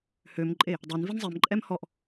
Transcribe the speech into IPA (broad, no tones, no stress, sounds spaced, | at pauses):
h ø m ǃʼ e | dˤ ø n v i n zˤ ɛ m ǃʼ ɛ m h ɔ ʔ